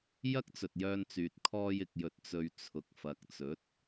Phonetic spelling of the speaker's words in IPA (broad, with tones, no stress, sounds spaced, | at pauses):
j ɐ˥ k̚ t͡s ɵ˨ t̚ j œː˧ n t͡s yː˨ t̚ kʰ ɔː˧ j ɪ˨ k̚ j ɵ˨ t̚ t͡s ɵ˨ ɥ t͡sʰ ʊ˨ k̚ f ɐ˨ k̚ t͡s ɵ˨˥ t̚